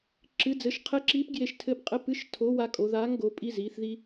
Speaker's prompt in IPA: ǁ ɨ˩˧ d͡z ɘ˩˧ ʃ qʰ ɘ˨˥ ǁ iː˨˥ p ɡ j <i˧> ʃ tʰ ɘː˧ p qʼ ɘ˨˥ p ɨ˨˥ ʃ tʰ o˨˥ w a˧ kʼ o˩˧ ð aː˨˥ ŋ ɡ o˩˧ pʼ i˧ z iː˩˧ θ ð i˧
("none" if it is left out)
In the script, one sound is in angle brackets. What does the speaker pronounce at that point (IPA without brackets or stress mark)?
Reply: e˧